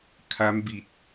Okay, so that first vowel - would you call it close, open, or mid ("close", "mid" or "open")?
open